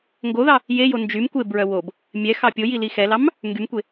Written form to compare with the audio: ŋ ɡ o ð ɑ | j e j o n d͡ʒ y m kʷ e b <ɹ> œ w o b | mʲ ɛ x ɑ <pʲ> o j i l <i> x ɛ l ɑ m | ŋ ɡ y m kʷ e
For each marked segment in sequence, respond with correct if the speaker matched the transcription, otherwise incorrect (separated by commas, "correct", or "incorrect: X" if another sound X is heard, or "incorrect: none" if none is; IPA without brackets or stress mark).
correct, correct, correct